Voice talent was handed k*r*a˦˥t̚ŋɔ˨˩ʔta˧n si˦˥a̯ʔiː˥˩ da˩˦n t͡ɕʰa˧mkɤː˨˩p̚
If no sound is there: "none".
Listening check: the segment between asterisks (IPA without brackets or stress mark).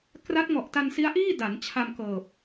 r